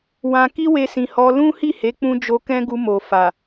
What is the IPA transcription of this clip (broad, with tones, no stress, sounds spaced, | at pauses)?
w ã˧ k i˦ w e˧ s ĩ˨ h ɔ˧ l ũ˦ h i˦˨ h e˨˦ k͡p ũ˧ d͡ʒ o˧ k ɛ̃˦ ɡ u˧ m o˨ f a˨